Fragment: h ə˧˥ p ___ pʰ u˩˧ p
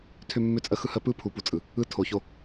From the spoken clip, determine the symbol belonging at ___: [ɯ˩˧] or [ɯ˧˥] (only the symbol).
ɯ˧˥